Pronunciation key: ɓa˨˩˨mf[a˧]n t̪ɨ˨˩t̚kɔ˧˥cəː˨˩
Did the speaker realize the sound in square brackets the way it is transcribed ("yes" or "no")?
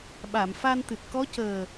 yes